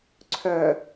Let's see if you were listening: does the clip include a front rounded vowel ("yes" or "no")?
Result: yes